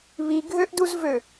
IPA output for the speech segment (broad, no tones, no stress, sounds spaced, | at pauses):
β i ɡʱ ø ʔ d u z v ø